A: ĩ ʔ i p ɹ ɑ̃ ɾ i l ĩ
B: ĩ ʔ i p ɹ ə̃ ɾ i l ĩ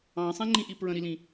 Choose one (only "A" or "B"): B